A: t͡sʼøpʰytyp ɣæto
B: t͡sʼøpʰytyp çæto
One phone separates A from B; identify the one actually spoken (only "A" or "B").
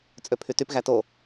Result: A